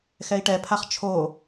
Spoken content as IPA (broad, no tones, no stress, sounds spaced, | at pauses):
x ɛ i̯ ʈ ɛ pʰ a χ t͡ʃʰ o